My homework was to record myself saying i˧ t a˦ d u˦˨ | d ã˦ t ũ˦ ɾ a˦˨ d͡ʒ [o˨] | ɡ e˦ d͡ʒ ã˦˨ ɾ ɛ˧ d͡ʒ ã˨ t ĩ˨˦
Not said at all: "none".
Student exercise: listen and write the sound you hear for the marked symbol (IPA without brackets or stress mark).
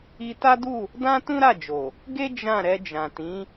o˨